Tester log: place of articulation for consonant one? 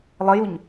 alveolar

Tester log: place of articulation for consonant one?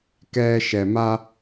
velar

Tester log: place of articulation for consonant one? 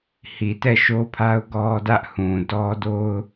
glottal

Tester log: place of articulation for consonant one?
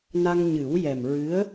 alveolar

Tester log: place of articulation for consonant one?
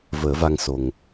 labial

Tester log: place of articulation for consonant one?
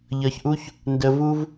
palatal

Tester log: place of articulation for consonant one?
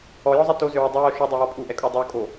palatal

